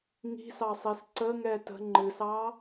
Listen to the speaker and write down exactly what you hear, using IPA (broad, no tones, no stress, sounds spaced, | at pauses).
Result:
ŋ i̤ s ɑ sˤ i s ǀ ə ŋ ɛ t ə̤ ŋ͡ǃ ɨ s ɑ